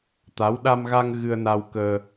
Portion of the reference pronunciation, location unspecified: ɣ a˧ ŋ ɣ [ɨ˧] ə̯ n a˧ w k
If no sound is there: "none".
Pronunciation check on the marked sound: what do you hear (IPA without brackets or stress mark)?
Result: ɨ˧